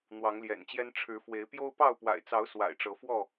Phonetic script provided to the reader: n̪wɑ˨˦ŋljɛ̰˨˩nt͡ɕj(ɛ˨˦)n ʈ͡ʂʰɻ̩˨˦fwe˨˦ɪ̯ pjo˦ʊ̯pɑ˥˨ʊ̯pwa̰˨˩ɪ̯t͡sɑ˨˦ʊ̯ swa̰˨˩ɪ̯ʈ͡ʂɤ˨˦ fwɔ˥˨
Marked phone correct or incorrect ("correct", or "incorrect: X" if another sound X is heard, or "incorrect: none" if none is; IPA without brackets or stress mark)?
incorrect: ɛ˦